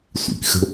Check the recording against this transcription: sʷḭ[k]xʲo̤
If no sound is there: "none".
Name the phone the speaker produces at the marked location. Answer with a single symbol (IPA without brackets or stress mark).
k